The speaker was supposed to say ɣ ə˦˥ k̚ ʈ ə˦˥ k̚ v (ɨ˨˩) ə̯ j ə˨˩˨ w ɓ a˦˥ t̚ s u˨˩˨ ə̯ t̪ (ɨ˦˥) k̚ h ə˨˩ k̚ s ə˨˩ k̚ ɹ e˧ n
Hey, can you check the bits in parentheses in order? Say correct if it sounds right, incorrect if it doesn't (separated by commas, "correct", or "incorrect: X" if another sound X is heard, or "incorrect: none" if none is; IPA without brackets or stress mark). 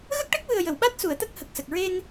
correct, incorrect: ə˦˥